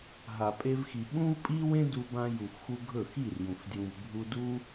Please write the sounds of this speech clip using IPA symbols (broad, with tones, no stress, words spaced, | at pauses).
ɦa˨pʼe˧vxi˨ ɓũ˦vpʼi˦wẽ˦ du˧bã˧ju˨fxu˧ ɡʱɵ˦˨xi˦˨rjũ˨f djũ˧vbʱu˦ du˦